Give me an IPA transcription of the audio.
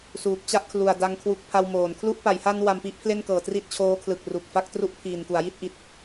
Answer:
s uː˨˩ k̚ t͡ɕ a˥˩ ʔ kʰ l u˨˩ a̯ d a˧ ŋ kʰ w u˦˥ k̚ pʰ a˧ w m oː˩˦ n kʰ l u˥˩ ʔ p a˩˦ j h a˧ n w a˧ m p i˥˩ ʔ pʰ l e˥˩ n k ɤː˨˩ t r i˦˥ t̚ t͡ɕʰ oː˦˥ kʰ l ɯ˨˩ k̚ r u˨˩ k̚ f a˥˩ k̚ t r u˥˩ ʔ pʰ iː˨˩ n k u˩˦ a̯ j i˥˩ t̚ ʔ i˨˩ t̚

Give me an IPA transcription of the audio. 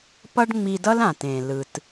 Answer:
p ʌ˥ ɖ ŋ͡m i˧ d ʌ˥ l ã˩ t ẽ˩ l ɯ˩ t

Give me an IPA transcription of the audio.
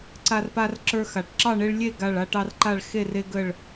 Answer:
ǀ a˦ r p a˦ r ǁ ə˞˦ x a˨˩ ʈ ǁ ɑ˥˨ ɳ e˦ ɭ lʲ e˥˨ ɡ a˥˨ ɭ a˦ ʈ ɑ˦ r ǃ a˥˨ ɭ x e˥˨ r e˦ ɡ ə˥˨ ɭ

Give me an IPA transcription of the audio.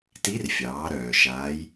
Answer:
t i˧˥ r fʲ ɑː˩˧ ɾ œː˩ ʃ aː˩˧ j

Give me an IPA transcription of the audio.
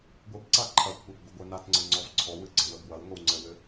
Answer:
ɡʷ ɘ b ǀ a ǃʰ ɐ kʷʰ œ b ɡʷ ə ɡʷ œ n a t ŋ͡ǀ ə ŋ͡ǀ ɔ v ǀʰ ɔ w ɨ ɡ͡ǀ ɐ w ə b w ɐ w ŋʷ ɘ w ŋ͡ǀ ɘ w ɘ

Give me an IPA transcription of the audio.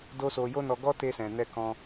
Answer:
d o˦ s o˧ j o˦ n ɔ˧ ɡ ɔ˦ t e˧ s ɛ̃˨ n ɛ˧ k ɔ̃˧

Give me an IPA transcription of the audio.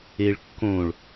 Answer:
e ɭ kː õ ɭ

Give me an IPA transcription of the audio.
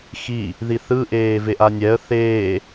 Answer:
x i | ð i θ ɯ ʔ eː v e ʔ a nʲ ɛ ə̯ θ eː

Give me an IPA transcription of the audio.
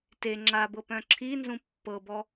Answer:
t e ŋ͡ǁ a b ɤ p œ̃ ǁʰ i n z ũ pː ɤ b ɔ

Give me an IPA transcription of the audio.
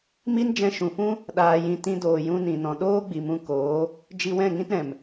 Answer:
m i˦ n d͡ʒ ɛ̃˧ ʃ ũ˨ f ũ˦ | ɗ aː˧ j ĩ˧ t ĩ˧ d oː˨ j ũ˧ n ĩ˧ n ɔ̃˧ ɗ oː˦ ɡ͡b i˨ m ũ˧ k oː˨˦ | d͡ʒ i˧ w ɛ̃˦˨ ŋ ĩ˦ t ɾ ɛ̃˨ m

